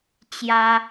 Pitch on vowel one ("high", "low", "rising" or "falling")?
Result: high